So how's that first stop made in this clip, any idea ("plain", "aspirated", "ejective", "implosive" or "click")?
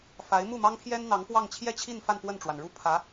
aspirated